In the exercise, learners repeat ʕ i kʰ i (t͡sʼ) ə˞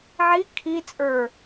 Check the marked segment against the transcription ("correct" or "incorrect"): correct